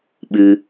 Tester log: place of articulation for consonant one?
labial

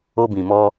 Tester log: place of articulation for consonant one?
labial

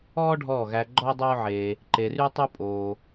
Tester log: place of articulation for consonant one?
retroflex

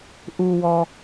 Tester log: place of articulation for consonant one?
glottal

